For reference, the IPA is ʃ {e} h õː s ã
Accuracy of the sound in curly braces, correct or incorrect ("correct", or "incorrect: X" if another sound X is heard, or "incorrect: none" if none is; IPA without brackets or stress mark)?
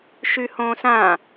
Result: incorrect: y